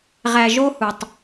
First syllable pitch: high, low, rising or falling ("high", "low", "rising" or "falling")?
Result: low